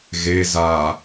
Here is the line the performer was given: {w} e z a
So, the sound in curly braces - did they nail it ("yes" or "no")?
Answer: no